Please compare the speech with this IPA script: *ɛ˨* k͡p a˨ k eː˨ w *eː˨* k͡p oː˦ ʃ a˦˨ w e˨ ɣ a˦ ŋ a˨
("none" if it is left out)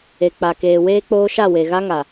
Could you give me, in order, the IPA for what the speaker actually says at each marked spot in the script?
e˨, eː˦

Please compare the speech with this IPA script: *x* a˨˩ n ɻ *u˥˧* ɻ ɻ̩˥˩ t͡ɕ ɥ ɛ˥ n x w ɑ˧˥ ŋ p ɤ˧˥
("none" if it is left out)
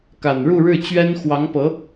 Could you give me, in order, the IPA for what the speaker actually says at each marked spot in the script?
k, u˥˧

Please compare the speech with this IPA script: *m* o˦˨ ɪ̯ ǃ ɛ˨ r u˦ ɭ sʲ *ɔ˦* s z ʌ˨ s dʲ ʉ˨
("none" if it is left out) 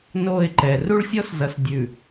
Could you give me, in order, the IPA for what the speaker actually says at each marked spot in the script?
n, ɔ˦

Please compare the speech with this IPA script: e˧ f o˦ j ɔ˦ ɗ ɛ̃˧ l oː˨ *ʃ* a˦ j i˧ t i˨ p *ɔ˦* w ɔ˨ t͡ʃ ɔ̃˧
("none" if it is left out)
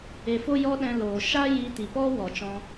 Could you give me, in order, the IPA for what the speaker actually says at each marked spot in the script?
ʃ, ɔ˦

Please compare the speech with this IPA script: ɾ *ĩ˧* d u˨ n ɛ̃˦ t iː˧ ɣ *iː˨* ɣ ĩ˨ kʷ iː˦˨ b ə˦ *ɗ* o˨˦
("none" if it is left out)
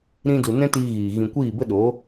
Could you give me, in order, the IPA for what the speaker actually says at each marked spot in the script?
ĩ˧, iː˨, ɗ

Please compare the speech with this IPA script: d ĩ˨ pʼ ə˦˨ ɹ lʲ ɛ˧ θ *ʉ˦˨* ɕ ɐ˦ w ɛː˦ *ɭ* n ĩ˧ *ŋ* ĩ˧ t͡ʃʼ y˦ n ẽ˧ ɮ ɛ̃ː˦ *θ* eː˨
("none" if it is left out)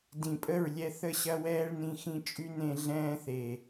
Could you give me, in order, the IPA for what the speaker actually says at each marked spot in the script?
ə˦˨, ɭ, x, θ

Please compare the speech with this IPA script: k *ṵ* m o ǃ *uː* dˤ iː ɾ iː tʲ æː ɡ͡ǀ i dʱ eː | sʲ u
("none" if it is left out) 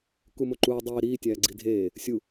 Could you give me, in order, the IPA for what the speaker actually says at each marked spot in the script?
u, uː

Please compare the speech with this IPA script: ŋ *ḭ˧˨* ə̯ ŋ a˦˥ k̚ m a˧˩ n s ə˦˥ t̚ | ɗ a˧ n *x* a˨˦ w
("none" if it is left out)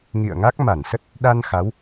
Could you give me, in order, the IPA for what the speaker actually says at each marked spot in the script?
ḭ˧˨, x

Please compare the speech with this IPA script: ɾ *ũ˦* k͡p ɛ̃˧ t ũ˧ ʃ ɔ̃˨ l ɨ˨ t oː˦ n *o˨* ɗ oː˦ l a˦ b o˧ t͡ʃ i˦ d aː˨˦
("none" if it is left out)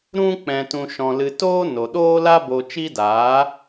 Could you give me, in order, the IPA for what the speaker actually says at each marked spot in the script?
ũ˦, o˨

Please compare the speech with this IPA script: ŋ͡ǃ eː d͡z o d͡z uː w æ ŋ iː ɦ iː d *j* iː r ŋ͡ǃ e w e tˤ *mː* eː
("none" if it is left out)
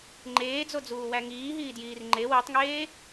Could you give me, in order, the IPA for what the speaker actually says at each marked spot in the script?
j, ŋ

